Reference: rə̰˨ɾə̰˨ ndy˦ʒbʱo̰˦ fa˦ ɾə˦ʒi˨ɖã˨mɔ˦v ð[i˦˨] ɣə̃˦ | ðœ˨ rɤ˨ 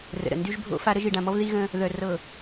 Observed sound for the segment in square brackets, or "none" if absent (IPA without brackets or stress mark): i˦